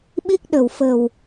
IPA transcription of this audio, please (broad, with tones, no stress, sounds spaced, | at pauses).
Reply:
ɓ i˦˥ k̚ ɗ ə̤˨˩ w f ə̤˨˩ w